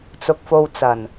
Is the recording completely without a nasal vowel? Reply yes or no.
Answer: yes